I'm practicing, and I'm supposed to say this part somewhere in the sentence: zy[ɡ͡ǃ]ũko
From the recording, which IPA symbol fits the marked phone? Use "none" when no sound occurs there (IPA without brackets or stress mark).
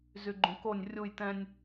ɡ͡ǃ